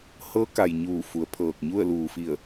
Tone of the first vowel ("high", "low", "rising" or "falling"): rising